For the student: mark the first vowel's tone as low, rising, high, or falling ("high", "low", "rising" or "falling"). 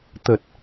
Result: low